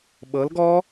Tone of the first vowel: rising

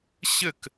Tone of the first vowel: falling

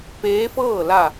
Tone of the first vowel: rising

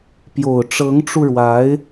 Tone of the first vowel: low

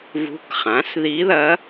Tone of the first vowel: rising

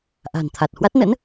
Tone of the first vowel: low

